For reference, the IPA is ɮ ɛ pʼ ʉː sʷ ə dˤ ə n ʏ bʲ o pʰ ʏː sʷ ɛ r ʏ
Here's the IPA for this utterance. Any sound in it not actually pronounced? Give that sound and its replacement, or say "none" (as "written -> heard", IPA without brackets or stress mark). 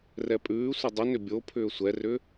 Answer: ɮ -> r